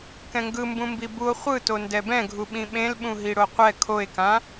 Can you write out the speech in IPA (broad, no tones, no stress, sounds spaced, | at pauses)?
k ɛ̃ ŋ ɡ ɯ m b ũ m b i b u o̯ χʷ ɯ t o n d ɛ b ɛ̃ ɡʱ u ɓ ĩ ɓ ẽ l ɓ ũ ɦ i ɽ o qʷ ɛ kʰ o e̯ k ã